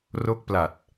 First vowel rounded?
yes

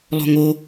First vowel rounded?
yes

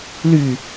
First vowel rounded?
yes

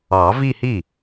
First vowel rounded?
no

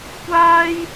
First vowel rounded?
no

